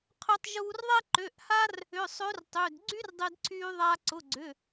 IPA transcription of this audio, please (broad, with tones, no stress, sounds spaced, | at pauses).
qʰ ø˧ tˤ ʒ uː˧ r ðˤ ɛ˥ ǃ ø˩˧˩ ʔ h a˥ r | ʏ˩˧˩ sˤ ø˧˥ r tˤ ø˩˧˩ d ɡ͡ǀ y˥ r dˤ e˧ d ǀʰ yː˧ ðˤ a˧ ǀ ʊ˩˧˩ ɡ͡ǀ ʏ˩˧˩